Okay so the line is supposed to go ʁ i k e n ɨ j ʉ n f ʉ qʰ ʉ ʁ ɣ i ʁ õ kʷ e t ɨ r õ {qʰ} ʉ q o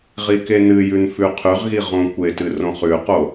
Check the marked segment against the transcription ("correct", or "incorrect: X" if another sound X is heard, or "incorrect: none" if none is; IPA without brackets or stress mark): incorrect: χ